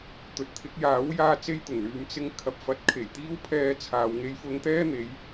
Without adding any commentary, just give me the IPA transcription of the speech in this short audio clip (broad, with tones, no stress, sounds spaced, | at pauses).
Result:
t̪ ɵ˨ t̚ t̪ʰ ɪ˨˥ k̚ j aː˨˥ w j aː˧ t͡s e˥ j t̪ ʊ˨˩ ŋ l yː˨˧ m t͡s ɪ˧ ŋ kʰ ɐ˨ p̚ f ɐ˨˥ t̚ kʰ e˨˩ j t̪ iː˥ w pʰ ɛː˧ t͡sʰ aː˨ w ŋ e˧ j f ʊ˧ ŋ t̪ ɛː˥ n̪ e˨˧ j